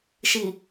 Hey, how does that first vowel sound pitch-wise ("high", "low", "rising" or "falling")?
low